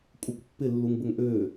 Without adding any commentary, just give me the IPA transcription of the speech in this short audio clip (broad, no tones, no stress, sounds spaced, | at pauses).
kʷʼ ə kʷ pː ɪ lː u ŋ b ə ŋ ʔ øː